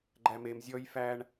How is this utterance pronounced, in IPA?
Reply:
ɡ͡ǃ æ m e m zʲ ɔ j f æ ɳ

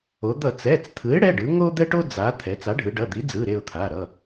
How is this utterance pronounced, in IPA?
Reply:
o˩˧ d̪ ʌ˧˩˧ t͡s ɛ˩˧˩ t͡s t̪ʰ ɯ˩˥ ɪ̯ ɽ ɛ˩˧˩ ɖ ɯ˩˧ ŋ o˦ d̪ ɛ˦ ʈ o˦ d͡z a˩˧ t̪ʰ ɛ˩˧ t͡s a˩˥ ɖʱ ɯ˩˧ ɖ ʌ˩˧˩ d̪ i˩˥ d͡z ɯ˩˧˩ ɾ e˦˨ ʊ̯ t̪ʰ a˩˧˩ ɾ ʌ˩˧˩

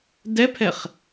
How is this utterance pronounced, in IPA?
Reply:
d ɛ pʰ ɛ χ

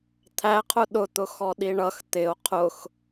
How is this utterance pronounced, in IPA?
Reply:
t̪ʰ æ qʰ ʊ ɗ ʊ t̪ ʊ x ɔ ɗ i ɳ ʌ x t̪ ɪ o̯ qʰ ʊ x

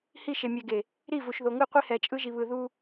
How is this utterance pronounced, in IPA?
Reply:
h i˦˨ ʃ e˨ mʲ ɛ˨ ɡ e˨ | ɾ i˦˨ v u˨ ʃ ð o˨ ŋ ɯ˦˨ qʷ i˦ h ɛ˨ t͡ʃʼ ɯ˦ ʒ i˨ β ɯ˨ ð u˦

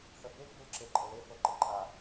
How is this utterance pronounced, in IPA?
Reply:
θ ə b e ɡ͡b u l ǁ e ǃʼ ə l e f ɤ ǃ ə ǃʼ a

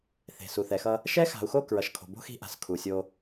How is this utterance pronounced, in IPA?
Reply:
θ e̤˨ s u˨ θ ɛ˨ x ʌ˦ | ʃ ɛ˦ x a̤˨ u̯ x o˦˨ k ɹ ʌ˨ ʃ kʰ o̤˨ b o̤˦ x i̤˦ ʔ a̤˨ s kʰ u˨ sʲ o˦

